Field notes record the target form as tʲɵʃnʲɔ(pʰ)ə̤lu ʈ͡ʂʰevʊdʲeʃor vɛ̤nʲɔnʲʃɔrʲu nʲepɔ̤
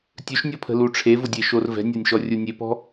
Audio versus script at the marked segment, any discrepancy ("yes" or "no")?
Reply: no